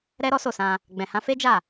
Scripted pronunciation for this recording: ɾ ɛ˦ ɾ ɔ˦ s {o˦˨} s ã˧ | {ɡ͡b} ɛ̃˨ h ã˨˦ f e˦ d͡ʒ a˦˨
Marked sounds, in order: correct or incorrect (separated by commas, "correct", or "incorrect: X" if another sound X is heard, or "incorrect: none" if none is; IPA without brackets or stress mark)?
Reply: correct, correct